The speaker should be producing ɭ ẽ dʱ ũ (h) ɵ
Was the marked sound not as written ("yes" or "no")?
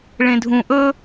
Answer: yes